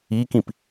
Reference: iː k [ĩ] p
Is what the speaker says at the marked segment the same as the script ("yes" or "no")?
yes